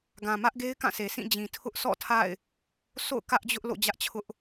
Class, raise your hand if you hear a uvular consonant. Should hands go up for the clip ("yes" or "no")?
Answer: no